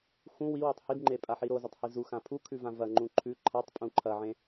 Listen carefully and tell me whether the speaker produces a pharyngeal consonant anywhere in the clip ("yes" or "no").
yes